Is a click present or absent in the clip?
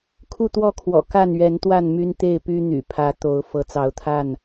absent